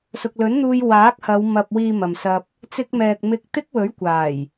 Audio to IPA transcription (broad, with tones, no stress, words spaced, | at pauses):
sʊ˨k̚lɵ˨˥nn̪uː˧j waː˨˥k̚hɐ˨˧w mɐ˨p̚wiː˨ mɐ˨msɐ˧p̚ | t͡sɪ˧k̚mɛː˨k̚ mɪ˧k̚ t̪ɪ˥k̚wɵ˨˥ɥ kʷaː˨˩j